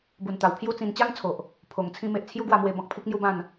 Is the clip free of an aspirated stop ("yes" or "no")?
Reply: no